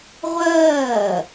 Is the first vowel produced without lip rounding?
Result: yes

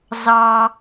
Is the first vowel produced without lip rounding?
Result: yes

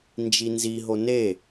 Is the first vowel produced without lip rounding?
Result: yes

